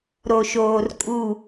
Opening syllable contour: low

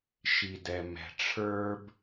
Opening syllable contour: low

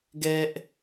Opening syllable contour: high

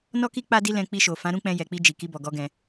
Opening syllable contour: high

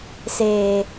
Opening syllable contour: low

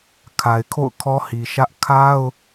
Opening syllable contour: low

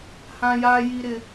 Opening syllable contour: high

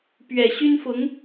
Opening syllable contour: low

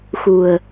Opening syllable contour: low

